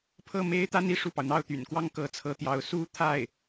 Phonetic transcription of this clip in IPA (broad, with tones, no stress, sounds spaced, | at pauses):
pʰ ɤ˥˩ m e˥ ɪ̯ t̪ a˥ n i˥˧ ʂ u˥˩ p ɑ˩ ʊ̯ n̪ ɑ˥˩ ʊ̯ t̪ y̰˨˩ n k w ɑ˥ ŋ k ɤ˧˥ t͡sʰ ɤ˧˥ t̪ j ɑ˧˥ ʊ̯ s u˥ t̪ʰ a˥˩ ɪ̯